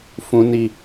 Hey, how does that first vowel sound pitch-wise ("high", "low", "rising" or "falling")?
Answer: low